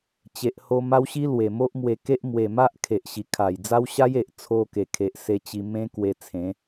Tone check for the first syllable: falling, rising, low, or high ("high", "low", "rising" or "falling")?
low